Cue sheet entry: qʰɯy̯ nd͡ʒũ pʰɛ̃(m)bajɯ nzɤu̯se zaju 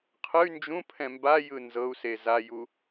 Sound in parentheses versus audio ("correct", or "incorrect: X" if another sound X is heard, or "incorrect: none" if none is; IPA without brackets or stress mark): correct